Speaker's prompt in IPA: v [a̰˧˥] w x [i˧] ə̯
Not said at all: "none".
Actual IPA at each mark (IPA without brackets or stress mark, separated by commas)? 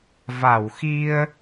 a˧˩, i˧